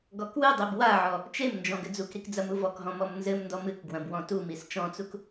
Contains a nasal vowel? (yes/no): yes